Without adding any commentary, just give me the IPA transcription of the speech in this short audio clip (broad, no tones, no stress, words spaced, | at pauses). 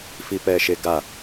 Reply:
fipɛːʃeɡa